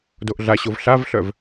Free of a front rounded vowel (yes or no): no